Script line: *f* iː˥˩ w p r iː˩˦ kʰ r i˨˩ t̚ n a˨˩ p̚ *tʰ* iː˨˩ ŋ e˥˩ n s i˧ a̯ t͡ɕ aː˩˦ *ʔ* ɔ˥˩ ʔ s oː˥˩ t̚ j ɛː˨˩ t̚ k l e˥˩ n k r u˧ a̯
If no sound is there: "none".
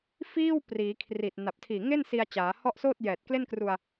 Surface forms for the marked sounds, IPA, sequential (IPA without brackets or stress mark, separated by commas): f, tʰ, h